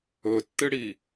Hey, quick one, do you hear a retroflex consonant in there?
yes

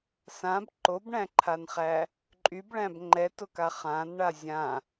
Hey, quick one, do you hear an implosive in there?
no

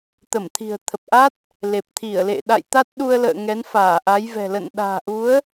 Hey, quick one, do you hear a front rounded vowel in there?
no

